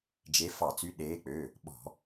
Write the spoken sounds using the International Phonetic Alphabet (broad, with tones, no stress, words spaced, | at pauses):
d͡ʒe˨˦ fɑ˧˩˧t͡sy˨˦ ɗeː˨˦k͡pø˩˧˩ | ɓɔ̤˧˩˧